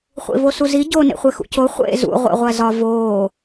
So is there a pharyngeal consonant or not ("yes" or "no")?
no